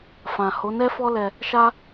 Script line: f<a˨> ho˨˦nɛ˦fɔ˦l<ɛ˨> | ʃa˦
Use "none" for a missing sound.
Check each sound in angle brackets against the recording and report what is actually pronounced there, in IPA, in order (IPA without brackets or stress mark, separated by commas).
ã˨, ɛ˧